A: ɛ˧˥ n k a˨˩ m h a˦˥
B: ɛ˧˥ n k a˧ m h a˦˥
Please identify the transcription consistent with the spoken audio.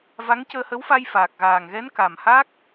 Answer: A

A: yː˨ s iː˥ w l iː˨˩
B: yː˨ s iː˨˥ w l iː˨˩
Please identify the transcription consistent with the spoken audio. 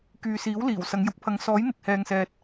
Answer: B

